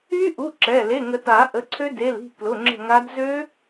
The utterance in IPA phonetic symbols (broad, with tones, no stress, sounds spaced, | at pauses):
y˦˥ ʔ u˩˧˩ ǁ ɛ˩˧˩ l e˩˧˩ ŋ ə˨˩˦ t a˨˩˦ ʔ ə˩˧˩ ǀʰ ø˦˥ d e˩˧˩ l i̤˦˨ k l ʊ˩˧˩ ŋ͡ǁ ə̤˦˨ ŋ a˦˥ d z ø˦˥